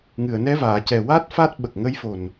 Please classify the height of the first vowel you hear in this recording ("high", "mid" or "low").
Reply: high